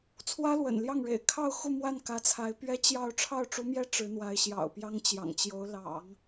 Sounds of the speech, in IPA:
t͡sʰ w ä˥ l w ə̰˨˩ n l j ɑ˥˩ ŋ ɻ ḛ˨˩ ɪ̯ kʰ ɑ˥˧ ʊ̯ x u˥˧ m w a˥˩ n k ä˧˥ t͡sʰ a˧˥ ɪ̯ p ɥ ɛ˥ t͡ɕ j ɑ˥˧ ʊ̯ ʈ͡ʂʰ ɑ˥˩ ʊ̯ ʈ͡ʂ u˧˥ m j ɛ˥ ʈ͡ʂ ɻ̩˧˥ n̪ w a˧˥ ɪ̯ ɕ j ɑ̰˨˩ ʊ̯ p j ɑ˥ ŋ t͡ɕ j ɑ̰˨˩ ŋ t͡ɕ j o˧˥ ʊ̯ l ɑ̰˨˩˦ ŋ

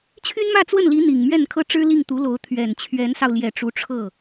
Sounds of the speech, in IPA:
t͡ɕʰ y˥ n m ä˥˧ t͡s w ə˥˩ n l i˧˥ n̪ i˨˩ ŋ m ɥ ɛ˥˩ n kʰ ɤ˥ ʈ͡ʂ ɻ̩˥ l i˥˩ ŋ t̪ u˧˥ l o˧˥ ʊ̯ t̪ʰ ɥ ɛ˨˩ n t͡ɕʰ ɥ ɛ˧˥ n s ɑ˧ ʊ̯ l j ɛ˨˩ ʈ͡ʂ u˧˥ ʈ͡ʂʰ ɤ˥˩

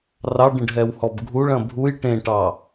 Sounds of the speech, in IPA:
r ɑ ɖ ə̃ ɖ ɦ ɛ w h ɔ b ɡʱ u ɭ ɐ̃ bʱ u j ʈ ẽ ʈ ɑ

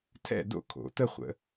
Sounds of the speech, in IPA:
tʰ ɛ̰˥˧ d o̰˥˧ kʰ o̰˩˧ t ə˥˧ χʷ ə̰˩˧

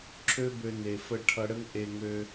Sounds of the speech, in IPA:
ǁʰ ø˦ b ø˧ n e˨ f ə˧ ʈʰ ʌ˧ ɽ ə˦ ŋ ʔ e˧ ŋ ø˧

